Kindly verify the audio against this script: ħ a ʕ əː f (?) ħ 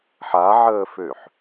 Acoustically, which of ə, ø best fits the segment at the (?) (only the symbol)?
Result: ø